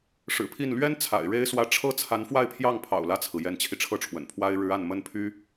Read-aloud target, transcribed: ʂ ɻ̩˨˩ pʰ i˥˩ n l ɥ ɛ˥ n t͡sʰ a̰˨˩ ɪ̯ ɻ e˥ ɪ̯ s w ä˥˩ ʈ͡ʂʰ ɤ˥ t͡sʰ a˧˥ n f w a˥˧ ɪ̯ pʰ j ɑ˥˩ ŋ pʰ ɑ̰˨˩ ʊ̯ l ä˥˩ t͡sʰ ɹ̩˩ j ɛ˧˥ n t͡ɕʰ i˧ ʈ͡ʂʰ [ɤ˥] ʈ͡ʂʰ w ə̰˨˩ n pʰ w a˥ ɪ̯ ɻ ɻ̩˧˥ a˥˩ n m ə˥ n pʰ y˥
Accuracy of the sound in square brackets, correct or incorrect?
incorrect